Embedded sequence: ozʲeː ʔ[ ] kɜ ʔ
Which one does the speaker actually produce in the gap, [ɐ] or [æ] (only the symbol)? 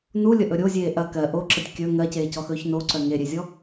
ɐ